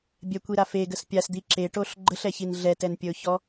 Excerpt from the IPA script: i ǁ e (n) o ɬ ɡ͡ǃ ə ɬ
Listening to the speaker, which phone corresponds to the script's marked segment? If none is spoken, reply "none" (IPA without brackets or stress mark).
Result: ʈ